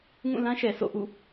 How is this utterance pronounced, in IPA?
ŋ ũ˦˨ l ã˦ ʃ ɛ˨ s o̰˦˨ ʔ ṵ˦˨

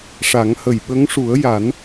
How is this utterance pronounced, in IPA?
ʂ a˨˩˦ ŋ h ə˨˩ j ɓ ə˧˥ ŋ ʂ u˨˩˦ ə̯ j a˨˩˦ n

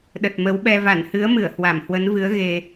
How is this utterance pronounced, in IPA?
ɗ ə˨˩ t̚ m ə˨˦ w ɓ ɛ˧ v a˧˩ n h ɨ˨˦ ə̯ m ɨ˧˩ ə̯ h w a˧˩ m h w ə˨˦ n v ɨ˨˦ ə̯ ɣ e˨˩

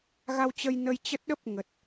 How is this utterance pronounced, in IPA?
ɣ a˧ w t͡ɕ ə˧ j n ə˧ j t͡ɕ ə˦˥ t̚ ɗ ə˦˥ p̚ ŋ ə˨˩ t̚

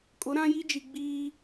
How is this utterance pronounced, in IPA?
kʼ ʊ˨˦ ɾ ã˦ j i˦ d͡ʒ i˨ ɡ͡b iː˦

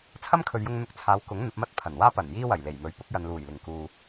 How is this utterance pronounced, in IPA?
t͡sʰ ɐ˥ m kʰ ɵ˨ ɥ j ʊ˧ ŋ n̪ ʊ˧ k̚ t͡sʰ aː˨˧ w k ʊ˨˥ ŋ n̪ ɐ˨˥ p̚ m ɐ˥ t̚ pʰ ɐ˨˩ n w aː˥ p ɐ˨˩ n j iː˥ w ɐ˨˩ j l e˨˩ j m ɵ˨˥ ɥ p ʊ˨˥ k̚ j ɐ˨ n l uː˨˩ j l ɪ˨˩ ŋ k uː˨

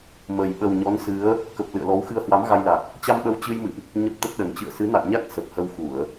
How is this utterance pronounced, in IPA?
m ə˨˩ j ɓ ə˨˩ w ɲ ɔ˨˦ n s ɨ˨˦ ə̯ | k ə˨˩ p̚ l ɨ̰˧˨ ə̯ l ɔ˨˦ w x ɨ˧ ə̯ h w a˨˦ m ɣ a˧ j l a˨˩ k̚ | t͡ɕ a˧ m ɓ ə˨˦ w t͡ɕ ɨ˧ j m ɨ̰˧˨ ʔ | ɲ ə˦˥ p̚ t̪ ə˦˥ t̚ ɗ ə˨˩ n t͡ɕ ɨ̰˧˨ ə̯ s ɨ˨˦ n a̰˧˨ j ɲ a˦˥ k̚ s ə˨˩ p̚ h ə˧ w x u˧˩˨ ə̯

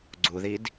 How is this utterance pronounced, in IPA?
ɡ͡ǀ u ð i d

